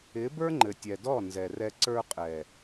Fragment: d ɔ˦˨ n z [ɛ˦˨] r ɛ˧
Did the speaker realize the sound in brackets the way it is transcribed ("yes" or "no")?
no